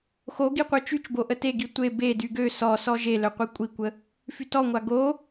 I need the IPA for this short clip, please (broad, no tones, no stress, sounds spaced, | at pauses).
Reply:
x o ɡ i qʷ œ t͡ʃ y t͡ʃ b o ʔ ə t e ɡ i tʷ e b e d y ɡ ø s ɔ s ɔ ʒ e l œ qʷ i kʷʼ i kʷ ə | f y t ɔ ŋʷ a ɡ o